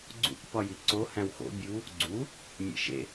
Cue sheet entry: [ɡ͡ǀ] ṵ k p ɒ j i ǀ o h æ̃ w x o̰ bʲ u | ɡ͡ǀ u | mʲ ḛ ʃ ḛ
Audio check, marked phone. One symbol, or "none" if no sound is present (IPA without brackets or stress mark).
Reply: ɡ͡ǀ